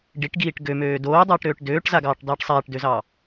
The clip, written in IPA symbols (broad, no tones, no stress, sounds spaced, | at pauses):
ɖ i ʈ ɡ iː ʈ ɡ ø m øː d oː dˤ oː ʈ ɾ øː ʈ d øː ʈ z a ɡ ɑː ʈ dˤ iː ʈ sˤ aː ʈ d ø z ɑː